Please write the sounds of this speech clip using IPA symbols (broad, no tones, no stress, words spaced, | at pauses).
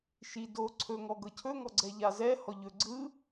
ʃi do ǀʰɵ ŋɔɡɤcʰɵ ŋɔɡ͡ǀɛʎazɛ hɔʎɵ ɡ͡ǀɯ